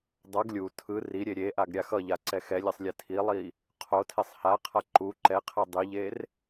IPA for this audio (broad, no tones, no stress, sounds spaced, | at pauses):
dˤ ʌ ɡ lʲ u tʰ ɯ r i ɾʲ e ɾʲ e ʔ a ɡ ɾʲ a x ʌ ʎ a ǀ ɛ x ɛ lʲ ɛ sˤ lʲ ɛ tʰ i lˠ i | qʰ o tʰ e sˤ h a qʰ a ǃ u ǃ ɛ qʰ ɛ dˤ i ʎ e r